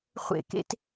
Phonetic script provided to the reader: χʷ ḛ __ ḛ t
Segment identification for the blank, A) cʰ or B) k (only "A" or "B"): B